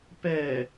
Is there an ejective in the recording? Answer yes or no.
no